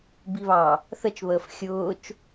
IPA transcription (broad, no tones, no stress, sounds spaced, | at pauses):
b i β ɑ | θ ə t͡ʃ β əː f xʲ ʊː t͡ʃ